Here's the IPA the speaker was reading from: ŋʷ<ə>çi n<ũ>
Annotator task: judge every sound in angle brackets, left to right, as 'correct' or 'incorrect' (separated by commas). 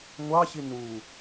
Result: incorrect, incorrect